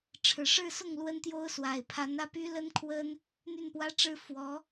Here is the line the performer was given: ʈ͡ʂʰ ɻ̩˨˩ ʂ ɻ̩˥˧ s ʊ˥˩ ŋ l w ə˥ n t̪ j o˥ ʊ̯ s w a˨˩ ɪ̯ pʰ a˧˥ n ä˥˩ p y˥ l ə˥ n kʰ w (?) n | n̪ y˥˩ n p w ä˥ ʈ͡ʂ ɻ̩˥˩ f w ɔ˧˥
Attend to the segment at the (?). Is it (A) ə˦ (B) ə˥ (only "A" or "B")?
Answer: B